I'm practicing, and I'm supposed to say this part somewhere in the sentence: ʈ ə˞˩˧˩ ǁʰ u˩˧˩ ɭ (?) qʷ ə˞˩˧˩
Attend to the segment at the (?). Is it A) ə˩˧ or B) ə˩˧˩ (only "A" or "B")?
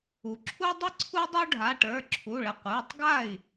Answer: A